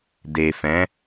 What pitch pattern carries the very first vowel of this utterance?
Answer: low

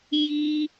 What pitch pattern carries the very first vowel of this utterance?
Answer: high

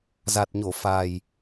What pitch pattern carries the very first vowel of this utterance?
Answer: low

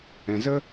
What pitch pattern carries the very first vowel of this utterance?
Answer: low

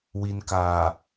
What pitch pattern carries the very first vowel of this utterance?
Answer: low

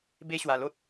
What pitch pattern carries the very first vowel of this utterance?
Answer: high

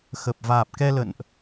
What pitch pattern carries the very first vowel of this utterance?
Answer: low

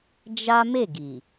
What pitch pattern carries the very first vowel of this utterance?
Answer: high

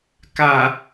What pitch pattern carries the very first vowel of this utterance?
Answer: low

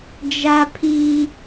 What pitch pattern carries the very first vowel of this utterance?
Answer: high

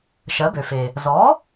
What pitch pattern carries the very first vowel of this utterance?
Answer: rising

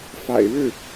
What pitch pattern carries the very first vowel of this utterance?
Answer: low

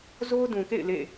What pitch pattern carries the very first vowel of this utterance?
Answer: high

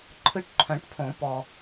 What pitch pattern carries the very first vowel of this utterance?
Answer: high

